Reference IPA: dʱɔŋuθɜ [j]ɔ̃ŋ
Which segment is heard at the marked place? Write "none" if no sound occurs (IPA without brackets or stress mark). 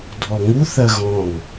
ɣ